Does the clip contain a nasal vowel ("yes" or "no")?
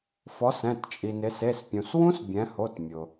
yes